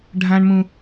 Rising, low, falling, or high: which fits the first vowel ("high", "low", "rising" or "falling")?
high